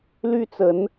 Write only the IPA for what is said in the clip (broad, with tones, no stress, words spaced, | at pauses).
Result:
ly˦t͡sə˨˦n